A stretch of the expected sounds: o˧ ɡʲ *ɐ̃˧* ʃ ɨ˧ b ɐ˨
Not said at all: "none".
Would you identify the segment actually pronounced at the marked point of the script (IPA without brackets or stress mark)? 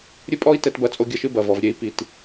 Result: ɐ˧